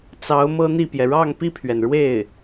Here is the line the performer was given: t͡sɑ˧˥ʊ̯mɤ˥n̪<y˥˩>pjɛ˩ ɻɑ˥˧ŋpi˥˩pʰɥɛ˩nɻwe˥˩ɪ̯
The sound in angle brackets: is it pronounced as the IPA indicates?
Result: no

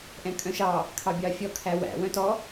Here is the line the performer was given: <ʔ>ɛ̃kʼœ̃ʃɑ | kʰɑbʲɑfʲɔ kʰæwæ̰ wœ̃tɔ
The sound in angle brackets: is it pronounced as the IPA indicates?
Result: yes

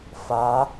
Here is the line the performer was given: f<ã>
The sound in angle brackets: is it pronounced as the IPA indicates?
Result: no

